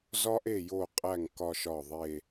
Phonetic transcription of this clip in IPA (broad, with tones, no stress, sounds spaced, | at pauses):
z ɒ˥ ʔ e˥˩ j o˥˩ qʼ æ˥˩ ŋ k ɒ˥˧ ʃ ɒ˥˩ ðˤ e˥˧